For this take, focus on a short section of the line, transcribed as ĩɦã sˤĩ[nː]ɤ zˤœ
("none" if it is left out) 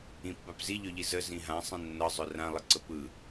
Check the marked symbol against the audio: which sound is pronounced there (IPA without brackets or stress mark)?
nː